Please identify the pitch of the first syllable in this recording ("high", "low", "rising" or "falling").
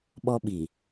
high